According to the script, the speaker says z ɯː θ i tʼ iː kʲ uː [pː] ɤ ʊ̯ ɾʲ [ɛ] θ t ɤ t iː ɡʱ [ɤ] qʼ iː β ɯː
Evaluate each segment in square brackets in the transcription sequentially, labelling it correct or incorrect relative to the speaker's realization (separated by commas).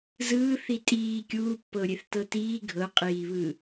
correct, incorrect, correct